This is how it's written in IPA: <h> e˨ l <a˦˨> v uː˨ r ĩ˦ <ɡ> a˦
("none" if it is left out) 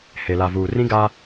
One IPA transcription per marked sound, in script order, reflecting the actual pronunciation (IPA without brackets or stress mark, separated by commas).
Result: h, a˨, ɡ